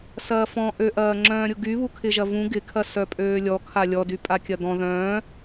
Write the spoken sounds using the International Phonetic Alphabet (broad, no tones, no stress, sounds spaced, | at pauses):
s ɐː f ɔ̃ ʔ ø ʔ ɐː ŋ͡ǁ œ̃ː ɾʲ ʊ ɡ y β u kʰ ɪ ʒ ɐ v ũ ɡ ɪ kʰ ɐ s œ pʼ øː lʲ ɔ kʰ a lʲ ɔ d y pʼ a kʲ ɐ d̪ ɔ̃ ð œ̃ː